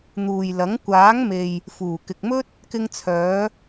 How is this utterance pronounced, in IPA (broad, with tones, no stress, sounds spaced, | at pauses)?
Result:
n̪ uː˨ j l ɐ˨˥ ŋ kʷ aː˨˥ ŋ m e˨ j | f uː˨˩ k ɪ˨ k̚ m ɵ˥ t̚ | k ɪ˧ ŋ t͡sʰ œː˨˧